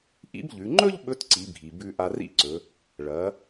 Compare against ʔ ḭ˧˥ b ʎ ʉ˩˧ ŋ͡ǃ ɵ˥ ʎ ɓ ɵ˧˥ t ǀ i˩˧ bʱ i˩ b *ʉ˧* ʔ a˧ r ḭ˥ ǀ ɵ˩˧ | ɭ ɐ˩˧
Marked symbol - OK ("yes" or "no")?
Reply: yes